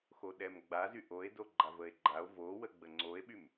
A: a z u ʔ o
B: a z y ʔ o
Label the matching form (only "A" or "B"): B